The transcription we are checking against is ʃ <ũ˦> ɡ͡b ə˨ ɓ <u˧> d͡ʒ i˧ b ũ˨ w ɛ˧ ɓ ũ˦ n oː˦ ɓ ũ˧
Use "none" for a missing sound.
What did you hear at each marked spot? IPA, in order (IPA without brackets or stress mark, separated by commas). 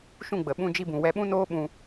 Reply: ũ˦˨, ũ˧